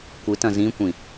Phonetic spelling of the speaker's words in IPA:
kʷ ɨ t ɐ̃ z ĩ kʷ ĩ

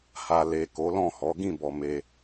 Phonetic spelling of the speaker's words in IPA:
h a˨ l e˨ k o˨˦ l ɔ̃˦˨ h ɔ˨˦ ɡ ĩ˦˨ b ɔ˨ m e˧

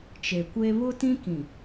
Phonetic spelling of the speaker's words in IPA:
t͡ʃ e˨ kʷ e˦ β ʊ˦ t ĩ˦ k ĩ˨

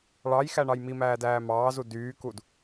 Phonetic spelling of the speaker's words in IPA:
ɭ ɑ j x æ ɳ ɑ j m i m æː d æː m ɑː z u d yː k u d

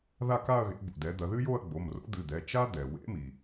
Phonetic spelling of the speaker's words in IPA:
ð a˥˧ k a˥˧ ɐ̯ ɣ ḛ˩˥ b o̰˩ d ɛ˩˥ d̪ ɐ˩˥ ð ɨ˥ j o˥˧ ɐ̯ ɡ͡b o˩˧˩ m r o̰˧˥ d̪ ɨ˩˧˩ d̪ ɛ˩˧˩ t͡ʃ a˥ d̪ ɛ˩ w ḛ˧˥ m i˩

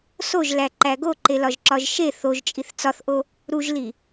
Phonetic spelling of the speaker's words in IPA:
s o ʒ l æ ǃ æ ɡ o ǃ e l ɒ ʒ ǁ ɒ ʒ ʃ e θ o ʒ t͡ʃʼ i θ t͡s ɒ θ ʔ o | ɾ u ʒ l i

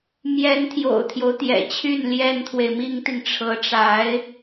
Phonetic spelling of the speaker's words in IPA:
m j ɛ˧˥ n t̪ʰ j o̰˨˩ ʊ̯ t̪ʰ j o˦ ʊ̯ t̪ j ɛ̰˨˩ t͡ɕʰ y˥˩ n l j ɛ˥ n t̪ʰ w e˨ ɪ̯ m i˥ ŋ t̪ i˨ ŋ ʈ͡ʂʰ ɤ˧˥ ʈ͡ʂ a˧˥ ɪ̯

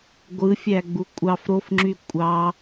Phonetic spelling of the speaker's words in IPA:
ɡʷ ɯ fʲ æ ɡ͡b u kʷʼ ɑ f ɾ o f ŋ͡ǁ y kʷʼ ɑ

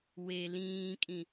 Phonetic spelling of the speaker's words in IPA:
w e l ĩː kʼ ĩ

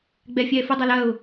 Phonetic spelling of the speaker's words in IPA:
ɡ͡b ɛ fʲ ɛː f u dˤ a l ɐ ʊ̯

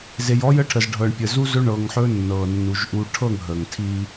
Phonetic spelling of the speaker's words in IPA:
z e˨ j ɔ˦ j ə˦ ʈʰ ə˨ z ɖʱ ɤ˨ ɳ pʲ ə˨ z u˦ z ɵ˦ ɳ ɤ˨ ŋ ħ ɵ˦ nː ɤ˨ nː u˨ ʒ ʔ u˦ ʈʰ ɤ˦˨ ŋ ɦ ə˨ ŋ tʰ i˦

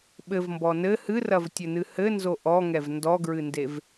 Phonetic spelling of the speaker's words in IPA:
ɓ ɘ v m b ɔ n ɘ h ɨ r ɐ v tʲ ɘ n ɨ h ɘ n z o ʔ ɔ ŋ ɛ v n d ɔ ɡ ɹ ɨ n d e v

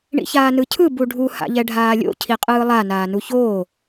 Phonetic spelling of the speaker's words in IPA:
ɳ ḭ ç aː n ɯ cʰ ɯ b u ɖʱ u h a̰ ʎ ɛ ɖʱ aː lʲ o̰ cʰ i qʼ ɯː lˠ a n aː n u ç oː

